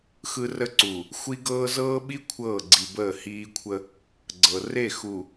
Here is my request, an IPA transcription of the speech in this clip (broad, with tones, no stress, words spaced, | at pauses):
xɯ˦rə˦ǀu˨ | xʷi˦ɡɤː˦ zɤː˦ɓi˦ kʷʰɤː˦˨ɡ͡ǀi˨bəː˦˨ hiː˦kʷʰə˦ | ɡ͡ǀɤ˨ re˦˨xu˨